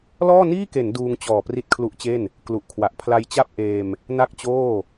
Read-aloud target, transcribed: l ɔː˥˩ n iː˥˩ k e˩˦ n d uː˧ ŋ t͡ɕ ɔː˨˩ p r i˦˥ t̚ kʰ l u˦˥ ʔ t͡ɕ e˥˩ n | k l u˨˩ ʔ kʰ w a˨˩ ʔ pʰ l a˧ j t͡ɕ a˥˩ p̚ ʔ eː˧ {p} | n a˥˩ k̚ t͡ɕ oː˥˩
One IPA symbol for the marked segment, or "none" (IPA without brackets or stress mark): m